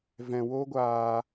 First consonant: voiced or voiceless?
voiced